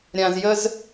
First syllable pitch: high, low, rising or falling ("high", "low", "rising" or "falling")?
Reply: low